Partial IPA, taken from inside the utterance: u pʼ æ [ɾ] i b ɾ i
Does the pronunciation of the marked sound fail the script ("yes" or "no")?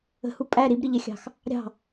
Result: no